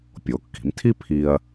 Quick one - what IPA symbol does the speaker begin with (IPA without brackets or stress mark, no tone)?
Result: pʲ